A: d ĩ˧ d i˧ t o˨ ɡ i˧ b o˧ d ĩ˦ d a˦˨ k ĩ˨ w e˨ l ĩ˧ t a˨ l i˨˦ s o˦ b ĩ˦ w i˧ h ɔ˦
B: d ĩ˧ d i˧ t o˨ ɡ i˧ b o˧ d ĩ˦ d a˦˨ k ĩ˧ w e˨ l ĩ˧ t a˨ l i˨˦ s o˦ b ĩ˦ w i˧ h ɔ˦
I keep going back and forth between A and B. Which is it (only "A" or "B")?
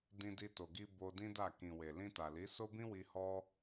A